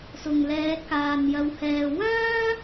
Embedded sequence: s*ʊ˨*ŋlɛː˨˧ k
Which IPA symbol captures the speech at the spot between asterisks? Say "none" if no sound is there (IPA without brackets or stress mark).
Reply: ʊ˨